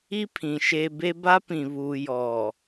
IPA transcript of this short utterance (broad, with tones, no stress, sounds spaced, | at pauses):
i˦ pʰ ĩ˨ ʃ e˨ b e˦ b a˦ p ĩ˨ β uː˨ j ɔ˨